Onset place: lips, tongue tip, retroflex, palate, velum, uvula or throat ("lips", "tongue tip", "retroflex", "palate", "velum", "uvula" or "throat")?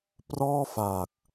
lips